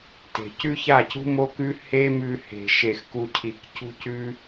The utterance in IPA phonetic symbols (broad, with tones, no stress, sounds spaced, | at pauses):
t e̤˨ c ʉ˦ ç a˦˨ c ṳ˦ m o˦ k ʉ˦ h e˦ m ʉ˨ h e̤˨ ʃ e˨ x k u˨ cʰ i˨ k c ṳ˧ c ʉ˧